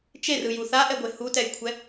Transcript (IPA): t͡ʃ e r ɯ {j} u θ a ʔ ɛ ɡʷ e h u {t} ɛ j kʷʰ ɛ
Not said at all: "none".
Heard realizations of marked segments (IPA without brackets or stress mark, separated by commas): j, t